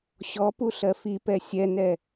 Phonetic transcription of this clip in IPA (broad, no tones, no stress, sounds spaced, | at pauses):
ɕ ɔ p u ɬ ɜ f i p ɛ sʲ ɛ n ɛ